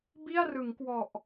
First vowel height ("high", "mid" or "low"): high